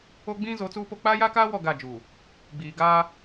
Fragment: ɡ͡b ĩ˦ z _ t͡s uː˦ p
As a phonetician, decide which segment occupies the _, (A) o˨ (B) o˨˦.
B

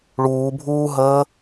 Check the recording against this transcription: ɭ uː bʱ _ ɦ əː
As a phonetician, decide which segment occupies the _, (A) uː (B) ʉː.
A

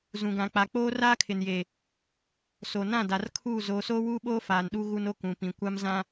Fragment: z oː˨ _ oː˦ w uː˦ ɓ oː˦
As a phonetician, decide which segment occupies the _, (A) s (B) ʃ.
A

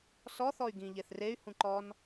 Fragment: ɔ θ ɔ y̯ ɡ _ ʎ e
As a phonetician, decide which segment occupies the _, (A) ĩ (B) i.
A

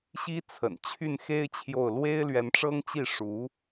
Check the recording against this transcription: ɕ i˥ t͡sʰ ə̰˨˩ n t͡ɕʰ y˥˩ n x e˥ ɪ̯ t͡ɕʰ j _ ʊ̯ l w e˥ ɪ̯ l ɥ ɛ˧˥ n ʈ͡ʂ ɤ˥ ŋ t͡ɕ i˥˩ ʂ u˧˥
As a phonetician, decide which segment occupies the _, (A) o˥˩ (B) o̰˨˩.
A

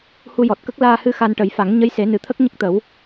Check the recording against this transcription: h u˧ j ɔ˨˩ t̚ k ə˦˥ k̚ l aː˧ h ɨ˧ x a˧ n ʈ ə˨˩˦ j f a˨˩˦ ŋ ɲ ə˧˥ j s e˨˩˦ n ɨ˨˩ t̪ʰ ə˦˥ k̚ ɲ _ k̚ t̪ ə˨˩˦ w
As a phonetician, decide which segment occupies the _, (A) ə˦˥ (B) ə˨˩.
A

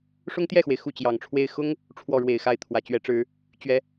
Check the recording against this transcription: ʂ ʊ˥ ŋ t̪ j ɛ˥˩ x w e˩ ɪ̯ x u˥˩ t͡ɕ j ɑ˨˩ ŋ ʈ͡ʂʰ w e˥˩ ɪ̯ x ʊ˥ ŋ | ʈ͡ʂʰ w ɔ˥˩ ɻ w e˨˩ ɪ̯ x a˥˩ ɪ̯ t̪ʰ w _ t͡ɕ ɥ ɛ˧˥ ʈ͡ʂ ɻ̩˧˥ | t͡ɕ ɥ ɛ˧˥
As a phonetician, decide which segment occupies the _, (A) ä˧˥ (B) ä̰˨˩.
A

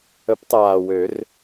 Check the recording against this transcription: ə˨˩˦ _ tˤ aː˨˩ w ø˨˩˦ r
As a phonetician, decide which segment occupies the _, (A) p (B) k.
A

